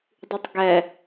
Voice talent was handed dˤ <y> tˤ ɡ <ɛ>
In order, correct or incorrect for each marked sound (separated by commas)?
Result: correct, correct